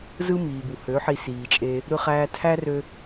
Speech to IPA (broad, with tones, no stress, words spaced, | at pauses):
zɯ˦miː˨bu˨ hø˨˦ ħi˧siː˨t͡ʃʼe˧ | ɾɯ˧χæː˧tʰæ˦rø˧